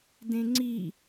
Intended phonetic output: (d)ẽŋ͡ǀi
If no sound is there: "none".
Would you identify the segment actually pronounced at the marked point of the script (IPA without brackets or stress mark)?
d